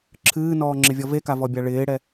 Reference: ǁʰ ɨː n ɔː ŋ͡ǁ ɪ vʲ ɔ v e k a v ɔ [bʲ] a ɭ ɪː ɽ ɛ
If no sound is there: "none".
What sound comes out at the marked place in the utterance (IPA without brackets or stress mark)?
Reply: bʲ